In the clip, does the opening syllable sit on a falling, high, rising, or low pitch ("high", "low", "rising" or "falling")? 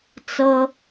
high